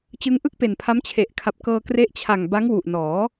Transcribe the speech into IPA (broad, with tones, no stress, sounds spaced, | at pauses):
t͡ɕ ɯ˦˥ ŋ ʔ ɯ˥˩ k̚ p e˨˩ n pʰ a˦˥ m t͡ɕʰ e˨˩ ʔ kʰ a˨˩ p̚ k ɤː˧ k r e˦˥ ʔ t͡ɕʰ a˨˩ ŋ b a˦˥ ŋ w u˨˩ ʔ n ɔː˩˦